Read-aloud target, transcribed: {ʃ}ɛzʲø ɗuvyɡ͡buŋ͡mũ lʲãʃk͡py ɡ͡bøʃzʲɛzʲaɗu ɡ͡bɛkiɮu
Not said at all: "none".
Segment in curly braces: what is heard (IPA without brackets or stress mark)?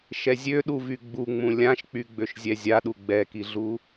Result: ʃ